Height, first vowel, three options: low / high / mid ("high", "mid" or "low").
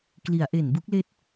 high